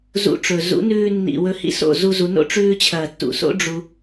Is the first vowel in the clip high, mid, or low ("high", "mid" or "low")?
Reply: high